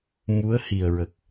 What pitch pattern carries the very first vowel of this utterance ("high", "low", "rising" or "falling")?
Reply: rising